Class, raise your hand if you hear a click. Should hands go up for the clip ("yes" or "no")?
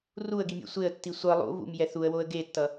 no